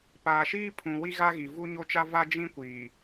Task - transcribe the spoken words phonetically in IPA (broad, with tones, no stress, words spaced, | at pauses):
paː˨ʃiː˦pʰũ˨ wi˦ɣa˦ɣi˨ vu˦ɲo˦t͡ʃa˦ va˦d͡ʒĩ˦kʷiː˨